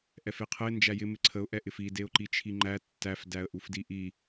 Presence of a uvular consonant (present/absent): present